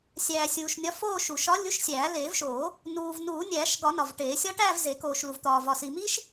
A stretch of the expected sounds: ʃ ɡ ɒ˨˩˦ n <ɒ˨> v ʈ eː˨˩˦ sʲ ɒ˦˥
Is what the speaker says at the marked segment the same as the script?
yes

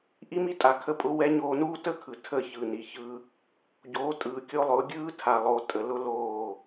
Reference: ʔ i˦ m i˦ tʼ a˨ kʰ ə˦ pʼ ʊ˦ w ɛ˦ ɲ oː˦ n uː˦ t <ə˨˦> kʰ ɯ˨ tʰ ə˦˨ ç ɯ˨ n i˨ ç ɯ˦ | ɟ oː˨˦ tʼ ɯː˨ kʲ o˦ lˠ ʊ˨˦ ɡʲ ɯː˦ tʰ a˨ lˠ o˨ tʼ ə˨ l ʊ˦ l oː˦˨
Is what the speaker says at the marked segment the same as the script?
no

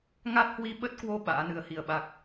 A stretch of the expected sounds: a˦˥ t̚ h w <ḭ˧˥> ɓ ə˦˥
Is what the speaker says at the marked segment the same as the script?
no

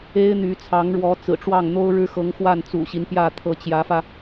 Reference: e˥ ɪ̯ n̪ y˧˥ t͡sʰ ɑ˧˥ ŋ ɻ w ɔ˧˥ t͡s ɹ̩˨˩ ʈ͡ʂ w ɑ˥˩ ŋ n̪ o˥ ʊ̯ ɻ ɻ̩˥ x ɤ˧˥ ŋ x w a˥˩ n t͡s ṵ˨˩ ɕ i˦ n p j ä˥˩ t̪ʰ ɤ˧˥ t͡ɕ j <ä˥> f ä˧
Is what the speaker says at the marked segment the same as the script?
no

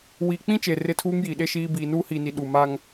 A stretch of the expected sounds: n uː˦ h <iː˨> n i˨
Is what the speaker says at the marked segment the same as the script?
yes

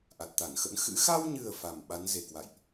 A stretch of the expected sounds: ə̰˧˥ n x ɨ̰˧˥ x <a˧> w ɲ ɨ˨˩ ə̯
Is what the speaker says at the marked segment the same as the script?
yes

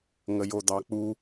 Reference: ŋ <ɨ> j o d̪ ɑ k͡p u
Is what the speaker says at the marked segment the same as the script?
no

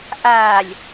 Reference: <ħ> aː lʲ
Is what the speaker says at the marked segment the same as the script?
no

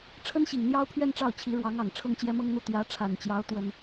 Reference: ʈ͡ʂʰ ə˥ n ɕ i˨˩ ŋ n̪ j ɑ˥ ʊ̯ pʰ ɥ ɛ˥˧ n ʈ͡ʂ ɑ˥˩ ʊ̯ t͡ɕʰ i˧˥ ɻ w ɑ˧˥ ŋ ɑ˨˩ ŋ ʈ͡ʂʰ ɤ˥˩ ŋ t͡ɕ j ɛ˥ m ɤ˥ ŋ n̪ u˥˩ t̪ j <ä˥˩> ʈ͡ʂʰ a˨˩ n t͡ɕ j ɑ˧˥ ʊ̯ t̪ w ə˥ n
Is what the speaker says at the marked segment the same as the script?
no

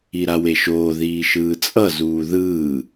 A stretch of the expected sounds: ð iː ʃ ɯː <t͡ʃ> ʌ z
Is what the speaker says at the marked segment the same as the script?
no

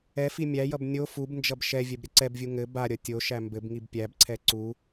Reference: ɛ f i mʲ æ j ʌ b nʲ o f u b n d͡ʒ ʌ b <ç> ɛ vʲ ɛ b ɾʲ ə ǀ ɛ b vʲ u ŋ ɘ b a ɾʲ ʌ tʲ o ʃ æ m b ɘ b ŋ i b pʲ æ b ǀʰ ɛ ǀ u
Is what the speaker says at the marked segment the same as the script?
no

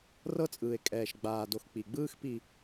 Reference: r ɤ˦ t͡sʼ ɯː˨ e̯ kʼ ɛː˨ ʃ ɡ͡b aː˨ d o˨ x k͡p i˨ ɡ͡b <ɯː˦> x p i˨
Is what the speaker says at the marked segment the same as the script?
yes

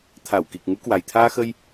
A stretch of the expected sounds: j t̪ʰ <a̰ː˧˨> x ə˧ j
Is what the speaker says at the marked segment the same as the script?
no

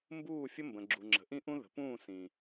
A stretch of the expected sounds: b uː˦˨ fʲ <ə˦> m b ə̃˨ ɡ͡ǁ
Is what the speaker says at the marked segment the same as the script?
yes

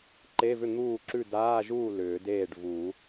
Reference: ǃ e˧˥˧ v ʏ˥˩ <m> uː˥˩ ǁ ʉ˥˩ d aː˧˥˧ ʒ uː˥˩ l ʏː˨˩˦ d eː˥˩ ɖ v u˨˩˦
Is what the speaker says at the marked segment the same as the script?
no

